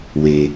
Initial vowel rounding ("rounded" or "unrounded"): unrounded